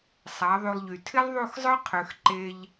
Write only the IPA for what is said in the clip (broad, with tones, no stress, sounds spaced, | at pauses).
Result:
sˤ a˨˦ ðˤ y˧ lˠ ʎ y˨ tʰ ɪ˦ lˠ ðˤ u˦˨ x zˤ œ˦ qʰ ø˧ x ǃ e˧ ʎ